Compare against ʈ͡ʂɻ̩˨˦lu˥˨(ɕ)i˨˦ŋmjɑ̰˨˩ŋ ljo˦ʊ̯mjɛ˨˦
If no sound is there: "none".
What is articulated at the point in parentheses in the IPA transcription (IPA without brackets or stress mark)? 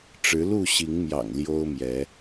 ɕ